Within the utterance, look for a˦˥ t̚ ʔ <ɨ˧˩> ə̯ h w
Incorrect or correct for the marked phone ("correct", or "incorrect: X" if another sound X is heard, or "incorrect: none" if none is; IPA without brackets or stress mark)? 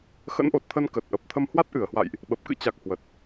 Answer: correct